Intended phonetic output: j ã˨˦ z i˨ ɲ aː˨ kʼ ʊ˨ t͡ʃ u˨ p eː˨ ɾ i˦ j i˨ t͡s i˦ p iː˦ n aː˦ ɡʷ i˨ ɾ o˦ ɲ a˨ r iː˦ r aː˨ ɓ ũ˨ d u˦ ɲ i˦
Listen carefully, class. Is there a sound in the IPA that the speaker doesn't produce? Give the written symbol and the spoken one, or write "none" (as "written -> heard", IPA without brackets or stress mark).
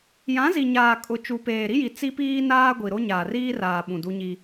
a˨ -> aː˨